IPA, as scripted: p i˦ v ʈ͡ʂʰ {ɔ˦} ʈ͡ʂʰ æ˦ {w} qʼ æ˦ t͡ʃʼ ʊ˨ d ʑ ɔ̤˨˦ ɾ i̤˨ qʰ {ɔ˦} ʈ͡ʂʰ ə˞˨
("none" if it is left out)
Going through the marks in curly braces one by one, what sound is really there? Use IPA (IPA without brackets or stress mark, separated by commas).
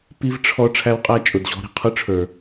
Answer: ɔ˦, w, ʊ˦